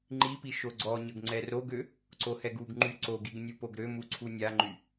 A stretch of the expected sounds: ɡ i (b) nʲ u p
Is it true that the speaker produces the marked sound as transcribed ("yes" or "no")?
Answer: no